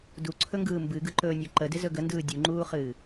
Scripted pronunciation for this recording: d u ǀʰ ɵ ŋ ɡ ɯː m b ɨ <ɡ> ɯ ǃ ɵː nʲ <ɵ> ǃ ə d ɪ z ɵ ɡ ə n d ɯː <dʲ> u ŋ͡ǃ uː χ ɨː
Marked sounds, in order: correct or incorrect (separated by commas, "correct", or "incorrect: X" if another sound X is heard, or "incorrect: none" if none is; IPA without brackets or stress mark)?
correct, incorrect: o, correct